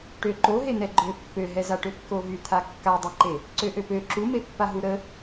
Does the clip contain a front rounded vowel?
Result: yes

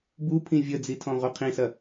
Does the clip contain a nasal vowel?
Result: yes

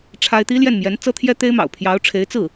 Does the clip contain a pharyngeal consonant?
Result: no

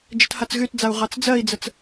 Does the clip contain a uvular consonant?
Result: yes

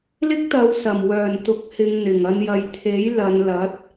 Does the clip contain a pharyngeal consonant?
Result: no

